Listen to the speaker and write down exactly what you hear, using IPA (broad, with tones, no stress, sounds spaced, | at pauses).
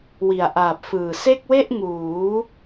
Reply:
w i˨˩ a̯ ʔ aː˨˩ p̚ f ɯː˨˩ s e˥˩ k̚ w e˥˩ ʔ ŋ uː˩˦